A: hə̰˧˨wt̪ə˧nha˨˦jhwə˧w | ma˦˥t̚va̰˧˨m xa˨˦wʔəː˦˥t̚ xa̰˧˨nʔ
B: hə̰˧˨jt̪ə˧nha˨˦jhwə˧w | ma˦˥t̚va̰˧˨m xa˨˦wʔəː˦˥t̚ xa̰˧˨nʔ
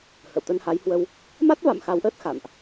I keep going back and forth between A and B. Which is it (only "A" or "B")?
A